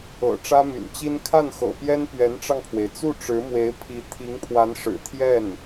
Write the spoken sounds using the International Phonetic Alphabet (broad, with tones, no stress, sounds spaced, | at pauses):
ɤ̰˨˩ ʈ͡ʂ ä˥ m y̰˨˩ n t͡ɕ i˥ n kʰ a˥˩ n x ɤ̰˨˩ p j ɛ˥ n p ɥ ɛ˧˥ n ʈ͡ʂ ɑ˧ ŋ pʰ w e˩ ɪ̯ t͡s u˥˩ ʈ͡ʂ ɻ̩˧˥ m w e˧˥ ɪ̯ pʰ i˧˥ t̪ʰ i˧˥ ŋ pʰ w a˧˥ n ʂ ɻ̩˨˩ t̪ʰ j ɛ˥˩ n